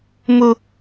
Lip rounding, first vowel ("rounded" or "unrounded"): rounded